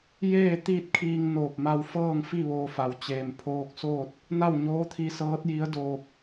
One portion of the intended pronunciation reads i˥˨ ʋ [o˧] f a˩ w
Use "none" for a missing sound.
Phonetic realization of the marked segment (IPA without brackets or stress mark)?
oː˧